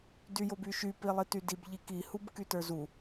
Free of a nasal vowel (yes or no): yes